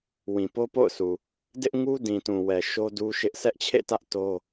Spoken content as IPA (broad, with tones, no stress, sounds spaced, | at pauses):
w ĩ˨ p o˦ p o̰˦˨ ʊ̯ sʰ u˨ | d ɪ˦ ʔ ŋ u˦ d ĩ˨ t ũ˨ w ɛ˨ ʃ o˦ d u˦ ʃ ɪ˦ ʔ sʰ ɛ˦ ʔ t͡ɕʰ ḛ˦˨ t ä˦ ʔ t o˦